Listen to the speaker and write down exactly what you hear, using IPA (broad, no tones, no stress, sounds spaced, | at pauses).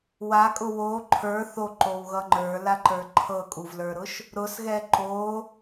w a kʼ ʊ w o ǃʰ ə˞ θ o ǃ o w ɣ ʌ ŋ͡ǃ ə˞ l a ǃ ə˞ ǃʰ ɤ kʼ u v l ə˞ ɾ ʊ ʃ | ɾ ʊ s ɣ ɛ ǃ o